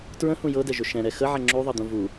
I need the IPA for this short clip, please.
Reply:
t ɹ ə̃ h ũ j ɤ d ɛ ʒ ɵ ʃ ɛ̃ ɾ ɛ x ə ʕ ɛ ŋ͡ǁ u ðˤ ɤ d̪ ũ v u

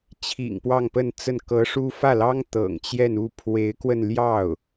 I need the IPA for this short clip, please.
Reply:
t͡ɕʰ ḭ˨˩ ŋ p w ɑ˥˧ ŋ p ə˥˧ n t͡s ə˥˩ n k ɤ˧˥ ʂ u˥ f ä˥˩ l ɑ˥ ŋ t̪ ɤ̰˨˩ ŋ t͡ɕ j ɛ˥˧ n u˥˩ pʰ w e˧˥ ɪ̯ k w ə˧ n l j ɑ˥˩ ʊ̯

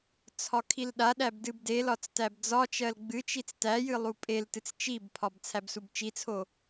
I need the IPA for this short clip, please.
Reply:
t͡sʰ ɒ kʰ i l ɗ a ɗ æ b d ɨ b d e l ɒ t͡s t æ b d͡z ɒ t͡ʃ ɜ l ɡ͡b ɨ t͡ʃ i t͡s t æ j ɨ lˠ u pʼ e l t ɨ t͡s t͡ʃ i b pʰ ɒ b t͡sʰ æ b s u b t͡ʃ i t͡sʰ o

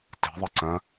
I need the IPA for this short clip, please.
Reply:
t e̤ ðˤ ɨ ǀ ɐ̃

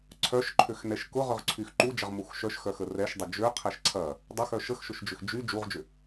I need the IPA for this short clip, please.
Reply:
ǀʰ œ ʃ ǃʰ ø x n ɛ ʃ k ʊ ʁ ʏ ʁ ǀʰ y x ǃ u d͡ʒ ɐ ʁ m u x ʃ œ ʃ x œ x ə r ɛ ʃ dˤ ʏ d͡ʒ ø qʰ ɛ ʃ ǀʰ ɐ | dˤ ɐ x œ ʃ ə x ʃ ʊ ʃ d͡ʒ ʏ x d͡ʒ y d͡ʒ u ʁ d͡ʒ ʏ

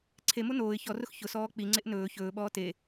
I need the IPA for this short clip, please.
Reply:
ǀʰ e m o n oː ɪ̯ ç ɔ r ʊ x ç ʊ s ɔː k͡p i ŋ͡ǀ e ʔ n ɵː ç ɵː ɓ ɔː t e

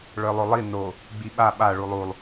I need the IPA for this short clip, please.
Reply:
ɭ œ lˠ o lˠ i n o | ɡ͡b i ɓ a ɓ a ɭ u lˠ u lˠ

